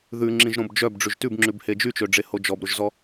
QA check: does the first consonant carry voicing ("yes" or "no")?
yes